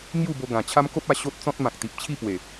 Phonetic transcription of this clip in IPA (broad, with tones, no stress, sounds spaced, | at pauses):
ŋ j u˥˧ b o˧ ɡ ã˨˩ t͡ɕʰ a˦ m k o˦ p̚ a˧ ɕ o˦ t̚ t͡s ɔ̃˦ t̚ m ã˨ k̚ t̪ i˨ p̚ t͡ɕʰ i˥˧ p w e˨˩